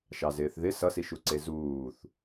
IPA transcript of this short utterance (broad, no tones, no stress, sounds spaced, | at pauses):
ʃ ɑ z ɪː θ ð ɪ s ʌ s i ʃ u ǀ e z uː θ